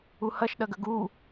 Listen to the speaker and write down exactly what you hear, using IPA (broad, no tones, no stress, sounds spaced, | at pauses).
u h ɐ ʃ ɗ ɐ ɡ ə ɡ u